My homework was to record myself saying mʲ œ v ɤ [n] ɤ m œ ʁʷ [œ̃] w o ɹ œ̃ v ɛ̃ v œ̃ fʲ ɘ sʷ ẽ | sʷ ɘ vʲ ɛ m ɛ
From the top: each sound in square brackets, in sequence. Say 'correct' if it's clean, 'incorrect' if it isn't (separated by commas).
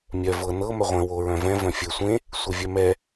correct, incorrect